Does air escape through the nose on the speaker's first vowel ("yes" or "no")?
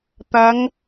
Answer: no